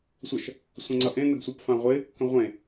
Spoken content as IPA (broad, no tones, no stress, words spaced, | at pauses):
sʷʌʃ | sʷə̃ŋ͡ǀʌʔẽ nəɡsʷʌp fãʁʷɪ | kə̃ʁʷẽ